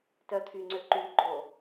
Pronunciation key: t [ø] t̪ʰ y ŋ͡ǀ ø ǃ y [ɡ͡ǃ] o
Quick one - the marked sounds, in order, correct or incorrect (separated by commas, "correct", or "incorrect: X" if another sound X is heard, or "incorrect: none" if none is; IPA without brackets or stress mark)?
incorrect: œ, correct